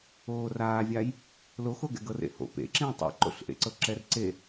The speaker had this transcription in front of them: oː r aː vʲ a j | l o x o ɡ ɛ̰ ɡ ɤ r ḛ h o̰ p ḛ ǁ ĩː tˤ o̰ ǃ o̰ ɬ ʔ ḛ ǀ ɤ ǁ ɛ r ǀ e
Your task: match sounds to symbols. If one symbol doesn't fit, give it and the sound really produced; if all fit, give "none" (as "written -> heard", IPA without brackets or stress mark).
none